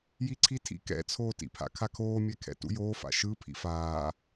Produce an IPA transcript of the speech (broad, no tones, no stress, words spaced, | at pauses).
jiǀʰitʰḭ kɛ̰t͡sʰoːtḭpʰa̰ kʰakʰoːmʲɛkʰɛ̰ tṵjoːfa̰ ʃɯ pʰḭfaː